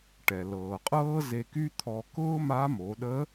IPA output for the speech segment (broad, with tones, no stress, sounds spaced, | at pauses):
ʈ ɛ˩ l ɤː˩ qʼ ɤː˥ z e˧ k y˥ t̪ʰ ɔ˧ k ʊː˥ m a˧˥ m o˩˧ ɗ ə˧˥